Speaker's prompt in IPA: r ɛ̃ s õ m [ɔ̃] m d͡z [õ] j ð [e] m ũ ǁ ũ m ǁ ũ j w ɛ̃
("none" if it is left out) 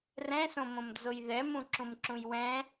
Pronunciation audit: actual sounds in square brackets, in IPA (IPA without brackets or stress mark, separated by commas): õ, o, ɛ